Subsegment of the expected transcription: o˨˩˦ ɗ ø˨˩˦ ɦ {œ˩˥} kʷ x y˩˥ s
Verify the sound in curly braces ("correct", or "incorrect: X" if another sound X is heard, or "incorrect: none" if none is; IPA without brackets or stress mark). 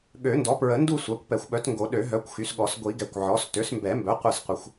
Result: correct